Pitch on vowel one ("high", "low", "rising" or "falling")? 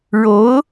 rising